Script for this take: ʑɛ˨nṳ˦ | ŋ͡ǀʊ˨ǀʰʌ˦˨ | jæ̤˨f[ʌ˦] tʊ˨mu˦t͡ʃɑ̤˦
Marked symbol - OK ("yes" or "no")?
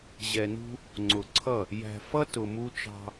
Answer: yes